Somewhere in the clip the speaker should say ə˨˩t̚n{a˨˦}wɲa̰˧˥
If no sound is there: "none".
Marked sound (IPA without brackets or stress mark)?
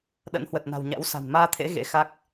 a̤˨˩